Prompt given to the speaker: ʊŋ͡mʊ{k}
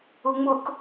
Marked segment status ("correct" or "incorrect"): correct